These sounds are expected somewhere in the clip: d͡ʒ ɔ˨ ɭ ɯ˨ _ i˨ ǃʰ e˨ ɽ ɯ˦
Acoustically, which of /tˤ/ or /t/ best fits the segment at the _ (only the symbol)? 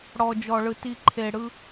t